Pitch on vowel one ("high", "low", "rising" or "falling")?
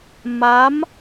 rising